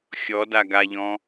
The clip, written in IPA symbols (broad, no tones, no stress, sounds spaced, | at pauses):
xʲ ɔ d a ɡ a ʎ ɔ̃